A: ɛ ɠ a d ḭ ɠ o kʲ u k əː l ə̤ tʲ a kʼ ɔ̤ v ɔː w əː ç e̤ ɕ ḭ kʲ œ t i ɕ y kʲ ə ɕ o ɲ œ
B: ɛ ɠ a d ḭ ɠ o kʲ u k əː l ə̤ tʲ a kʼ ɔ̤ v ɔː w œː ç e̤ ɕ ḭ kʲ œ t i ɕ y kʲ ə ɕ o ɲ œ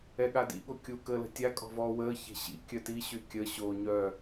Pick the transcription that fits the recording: A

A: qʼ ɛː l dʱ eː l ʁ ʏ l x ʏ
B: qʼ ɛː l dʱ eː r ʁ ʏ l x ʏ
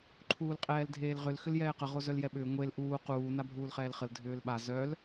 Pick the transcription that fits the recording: A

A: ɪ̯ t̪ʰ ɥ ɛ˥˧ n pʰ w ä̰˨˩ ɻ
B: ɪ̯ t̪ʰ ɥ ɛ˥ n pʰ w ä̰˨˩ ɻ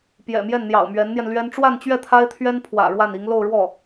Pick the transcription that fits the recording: B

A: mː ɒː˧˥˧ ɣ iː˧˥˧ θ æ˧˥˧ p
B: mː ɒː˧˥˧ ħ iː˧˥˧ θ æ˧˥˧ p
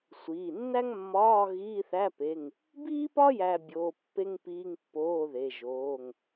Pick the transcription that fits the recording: A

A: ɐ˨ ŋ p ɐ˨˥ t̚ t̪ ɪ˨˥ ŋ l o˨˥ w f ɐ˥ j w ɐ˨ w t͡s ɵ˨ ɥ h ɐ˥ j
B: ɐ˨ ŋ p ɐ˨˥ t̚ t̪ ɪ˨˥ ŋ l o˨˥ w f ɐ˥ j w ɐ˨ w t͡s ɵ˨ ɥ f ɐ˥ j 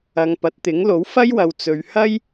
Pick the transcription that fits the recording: A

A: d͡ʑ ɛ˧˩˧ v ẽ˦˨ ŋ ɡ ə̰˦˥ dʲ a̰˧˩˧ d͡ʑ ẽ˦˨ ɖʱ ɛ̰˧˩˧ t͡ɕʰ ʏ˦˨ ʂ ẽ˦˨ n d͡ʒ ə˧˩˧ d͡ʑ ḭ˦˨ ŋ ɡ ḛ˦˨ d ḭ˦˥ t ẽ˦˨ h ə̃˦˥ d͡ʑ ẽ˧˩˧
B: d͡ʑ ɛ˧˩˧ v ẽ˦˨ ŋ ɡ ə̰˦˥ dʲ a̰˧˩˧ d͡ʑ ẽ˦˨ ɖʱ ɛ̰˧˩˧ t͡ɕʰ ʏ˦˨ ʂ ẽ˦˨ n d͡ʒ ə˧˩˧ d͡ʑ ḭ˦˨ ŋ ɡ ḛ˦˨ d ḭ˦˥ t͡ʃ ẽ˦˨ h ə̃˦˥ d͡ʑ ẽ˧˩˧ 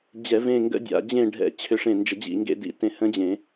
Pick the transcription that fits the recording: A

